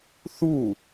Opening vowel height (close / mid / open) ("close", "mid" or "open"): close